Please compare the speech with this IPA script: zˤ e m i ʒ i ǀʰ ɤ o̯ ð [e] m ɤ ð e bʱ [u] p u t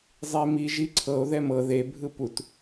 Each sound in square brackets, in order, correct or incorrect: incorrect: ɛ, incorrect: ɯ

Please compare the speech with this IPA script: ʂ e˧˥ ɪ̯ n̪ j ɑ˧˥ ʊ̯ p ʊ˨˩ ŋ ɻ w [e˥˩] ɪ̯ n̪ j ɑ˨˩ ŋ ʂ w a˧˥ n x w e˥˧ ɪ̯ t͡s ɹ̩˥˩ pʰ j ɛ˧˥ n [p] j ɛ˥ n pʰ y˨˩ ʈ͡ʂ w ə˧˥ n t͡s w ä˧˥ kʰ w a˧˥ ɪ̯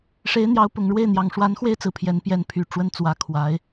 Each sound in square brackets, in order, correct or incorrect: correct, correct

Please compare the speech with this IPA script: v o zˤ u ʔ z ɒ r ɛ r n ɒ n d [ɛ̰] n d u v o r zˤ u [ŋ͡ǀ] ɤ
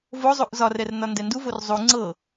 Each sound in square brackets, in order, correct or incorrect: incorrect: ɛ, correct

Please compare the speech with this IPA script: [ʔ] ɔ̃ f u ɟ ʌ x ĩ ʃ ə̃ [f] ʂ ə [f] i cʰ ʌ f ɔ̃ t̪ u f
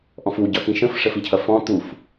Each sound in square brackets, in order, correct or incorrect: correct, correct, correct

